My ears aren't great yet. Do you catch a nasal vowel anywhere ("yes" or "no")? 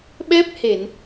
no